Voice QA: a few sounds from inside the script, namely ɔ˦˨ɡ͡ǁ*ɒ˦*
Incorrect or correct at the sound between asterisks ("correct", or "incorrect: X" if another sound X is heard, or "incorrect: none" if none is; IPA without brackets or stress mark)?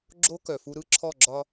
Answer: correct